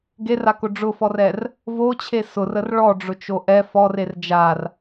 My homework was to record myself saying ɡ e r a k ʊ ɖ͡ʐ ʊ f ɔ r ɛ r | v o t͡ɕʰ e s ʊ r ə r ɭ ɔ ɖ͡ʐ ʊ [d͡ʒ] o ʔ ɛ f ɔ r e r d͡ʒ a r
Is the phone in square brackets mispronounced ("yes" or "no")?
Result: yes